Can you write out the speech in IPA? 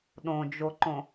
ɗ õ d͡ʒ o ǃ õ

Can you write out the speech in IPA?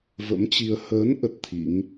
v ə̰˧˥ m t͡ɕ i˧ ə̯ h əː˨˦ n ʔ ə˦˥ t̚ t̪ʰ ḭ˧˥ ŋ

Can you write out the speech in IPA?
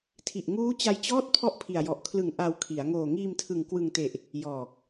tʰ i˨˩ ʔ ŋ uː˦˥ t͡ɕ a˧ j t͡ɕ ɔː˥˩ t̚ pʰ ɔ˥˩ ʔ pʰ i˨˩ a̯ j ɔ˨˩ ʔ kʰ l ɯ˨˩ ŋ ʔ a˧ w kʰ i˩˦ a̯ ŋ oː˨˩ ŋ iː˧ m tʰ ɯ˨˩ ŋ k w ɯ˨˩ ŋ t e˨˩ ʔ | j ɔː˨˩ k̚

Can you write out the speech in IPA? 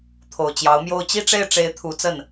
t̪ʰ o˨˩ ʊ̯ t͡ɕ j ɑ˧˥ ʊ̯ m j o˥˧ ʊ̯ t͡ɕ i˥˧ ʈ͡ʂ e˥˩ ɪ̯ ʈ͡ʂ e˧˥ ɪ̯ t̪ʰ u˧˥ t͡s ə˥˩ n

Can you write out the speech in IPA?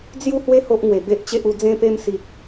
d͡z j u˥˧ h w e˦ h o˦ ʔ ŋ w e˨˩ b e˦ ʔ t͡ɕ e˦ ʔ u˧ d͡z ẽ˧ p e˧ m s i˨ k̚

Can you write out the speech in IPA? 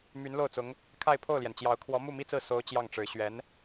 m y˧˥ n l o˥˩ ʊ̯ t͡s ʊ˧˥ ŋ | kʰ a˥˧ ɪ̯ pʰ o˥˩ ʊ̯ l j ɛ˩ n t͡ɕ j ɑ˧˥ ʊ̯ kʰ w ɔ˧˥ m u˥˩ m i˥ t͡s ɹ̩˥˩ s o˥ ʊ̯ t͡ɕ j ɑ˥˩ ŋ ʈ͡ʂ ɻ̩˧˥ ɕ ɥ ɛ˧˥ n

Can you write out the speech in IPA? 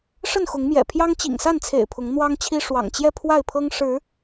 ʂ ə˥˨ n x ʊ˨˦ ŋ m j ɛ̰˨˩ pʰ j ɑ˦ ŋ t͡ɕ ḭ˨˩ ŋ s a˥˨ n t͡sʰ ḛ˨˩ ɪ̯ pʰ ʊ˨˦ ŋ n̪ w ɑ˦ ŋ t͡ɕʰ i˦ ʂ w ɑ̰˨˩ ŋ t͡ɕ j ɛ˥˨ pʰ w a˥˨ ɪ̯ pʰ ɤ˦ ŋ ʂ ɻ̩˨˦

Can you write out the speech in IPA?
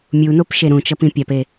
mʲ u n o p ʃ e ɾ ũ t͡ʃ ʌ p ĩ pʲ a p e

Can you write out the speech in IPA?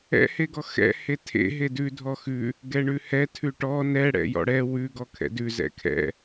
ɛ̰ h e ɡ ɔ x ɛ̰ h e tʰ ḛ ɦ e d ʉ dʱ ɔ x ʉ | ɡ ɛ ɳ ʉ h ɛ tʰ ʉ ʈ ɔ n ɛ ɽ ɛ̰ j ɔ̰ ɽ ɛ w ʉ ɡ ɔ kʰ ɛ̰ d ʉ z ɛ̰ kʰ ɛ̰

